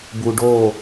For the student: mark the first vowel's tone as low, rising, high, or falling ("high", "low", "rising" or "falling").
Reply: low